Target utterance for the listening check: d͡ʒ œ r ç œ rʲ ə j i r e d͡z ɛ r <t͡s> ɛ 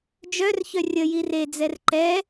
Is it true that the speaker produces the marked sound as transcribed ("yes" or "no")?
no